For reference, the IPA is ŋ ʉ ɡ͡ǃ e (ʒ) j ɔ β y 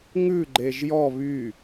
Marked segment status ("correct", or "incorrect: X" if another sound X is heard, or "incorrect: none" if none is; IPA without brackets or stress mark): correct